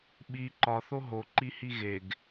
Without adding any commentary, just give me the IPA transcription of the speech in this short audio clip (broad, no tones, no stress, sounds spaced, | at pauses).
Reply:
ɓ i ǃ ɒ θ o ɦ o ǃ i h i ɣ e ɡ